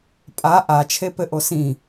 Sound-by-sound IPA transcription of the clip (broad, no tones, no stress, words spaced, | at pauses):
pʼa ʔa t͡ʃʰepɘʔosĩ